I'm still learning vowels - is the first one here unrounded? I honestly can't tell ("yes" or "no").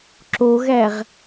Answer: no